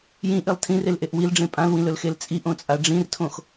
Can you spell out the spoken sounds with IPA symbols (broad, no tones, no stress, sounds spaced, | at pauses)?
j ĩ ʔ i lˠ tʰ ĩ r e l ʔ e ʔ w i l ɖ͡ʐ ẽ pʼ ã l w ĩ l ɵ l x e l t͡sʼ i ʔ õ t͡sʼ a ɖ͡ʐ ĩ r tʰ õ x